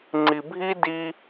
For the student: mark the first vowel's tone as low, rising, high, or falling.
low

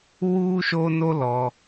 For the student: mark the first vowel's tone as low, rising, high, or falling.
high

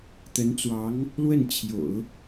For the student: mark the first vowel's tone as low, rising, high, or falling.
rising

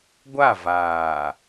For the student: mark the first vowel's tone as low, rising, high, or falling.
falling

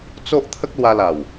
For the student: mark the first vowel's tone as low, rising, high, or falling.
high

